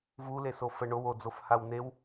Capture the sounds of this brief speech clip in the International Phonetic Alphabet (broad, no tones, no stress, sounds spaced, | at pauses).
v u l e s o f ə ɳ o w o d͡z o f h a w n e w